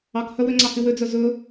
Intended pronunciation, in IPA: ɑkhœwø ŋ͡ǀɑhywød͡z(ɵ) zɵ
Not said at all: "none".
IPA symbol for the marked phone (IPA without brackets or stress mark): œ